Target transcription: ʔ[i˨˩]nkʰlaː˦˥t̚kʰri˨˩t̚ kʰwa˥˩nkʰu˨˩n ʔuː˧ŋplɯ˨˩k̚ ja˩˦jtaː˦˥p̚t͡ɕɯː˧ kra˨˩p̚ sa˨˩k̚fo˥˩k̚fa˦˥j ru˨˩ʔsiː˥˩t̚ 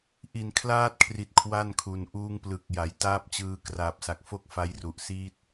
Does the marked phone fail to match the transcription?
no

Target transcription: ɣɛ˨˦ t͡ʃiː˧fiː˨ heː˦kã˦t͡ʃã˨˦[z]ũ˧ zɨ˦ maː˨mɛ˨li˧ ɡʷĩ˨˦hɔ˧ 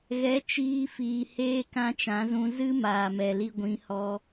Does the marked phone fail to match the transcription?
no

